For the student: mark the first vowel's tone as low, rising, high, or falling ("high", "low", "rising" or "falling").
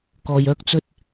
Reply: low